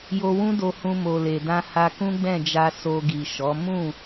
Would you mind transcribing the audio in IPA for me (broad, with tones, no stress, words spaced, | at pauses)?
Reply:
jo˧wũ˦do˧hũ˧ mo˨le˨dã˧ ha˧kũ˦ɡ͡bɛ̃˦˨d͡ʒa˧ so˧ɡi˨ ʃɔ˨˦ mũ˦˨